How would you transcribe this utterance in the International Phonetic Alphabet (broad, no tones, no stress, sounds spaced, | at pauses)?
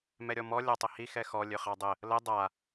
m ɛ ɾʲ ɔ m ɔ lʲ ɑ tˤ ə h i x ɛ x ɔ lʲ ø χ ɑ dˤ ə | l ə dˤ a